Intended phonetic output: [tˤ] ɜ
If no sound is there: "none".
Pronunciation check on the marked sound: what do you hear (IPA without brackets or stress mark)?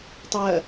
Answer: tˤ